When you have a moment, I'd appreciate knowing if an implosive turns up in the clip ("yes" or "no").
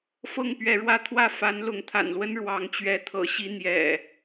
no